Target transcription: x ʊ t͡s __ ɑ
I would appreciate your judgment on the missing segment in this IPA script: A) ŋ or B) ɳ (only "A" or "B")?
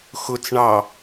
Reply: B